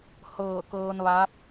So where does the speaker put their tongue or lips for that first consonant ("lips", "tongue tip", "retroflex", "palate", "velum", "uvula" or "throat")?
throat